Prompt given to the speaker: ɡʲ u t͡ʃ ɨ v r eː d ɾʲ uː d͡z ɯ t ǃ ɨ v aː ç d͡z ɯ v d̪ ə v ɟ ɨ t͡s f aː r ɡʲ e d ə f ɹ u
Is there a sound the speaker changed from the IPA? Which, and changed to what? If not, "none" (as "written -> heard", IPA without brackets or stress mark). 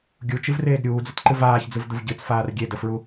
none